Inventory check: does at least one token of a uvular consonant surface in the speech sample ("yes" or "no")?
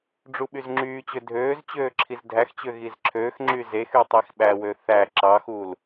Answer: no